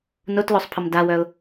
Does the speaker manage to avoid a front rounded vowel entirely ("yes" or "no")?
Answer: no